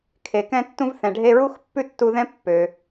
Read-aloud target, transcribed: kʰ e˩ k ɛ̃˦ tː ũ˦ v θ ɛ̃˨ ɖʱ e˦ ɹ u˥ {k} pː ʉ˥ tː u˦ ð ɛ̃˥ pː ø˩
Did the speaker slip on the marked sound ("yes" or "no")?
yes